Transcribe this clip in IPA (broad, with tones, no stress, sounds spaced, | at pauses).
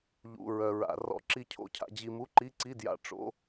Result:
ʎ ṵ˧˥˧ ɹ œ˧ ɹ a̰˧ r ɔ̰˧ ǁ i˧ cʰ o̰˧˥˧ cʰ a̰˧ d͡ʑ i˧ m u˧˥˧ ǃ i˧˥˧ ǀ i˧˥˧ d j a̰˧ ʈ͡ʂ o̰˧˥˧